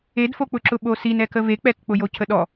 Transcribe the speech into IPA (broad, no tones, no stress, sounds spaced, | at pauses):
e d f o k͡p ʊ ǁ ʊ ɓ o s i n ɛ k ə v e k͡p ɛ k k͡p ʊ j o cʰ ə ɗ ɔ